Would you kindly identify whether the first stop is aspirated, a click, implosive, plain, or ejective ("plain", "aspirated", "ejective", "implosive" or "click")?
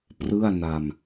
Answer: plain